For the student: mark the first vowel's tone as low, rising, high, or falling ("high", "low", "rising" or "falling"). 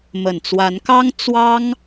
low